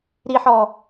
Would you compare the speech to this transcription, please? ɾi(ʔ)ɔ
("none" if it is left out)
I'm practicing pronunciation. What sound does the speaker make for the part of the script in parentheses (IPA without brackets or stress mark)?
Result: ħ